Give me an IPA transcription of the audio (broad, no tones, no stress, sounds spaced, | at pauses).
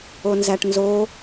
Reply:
o n z æ ʈ n z o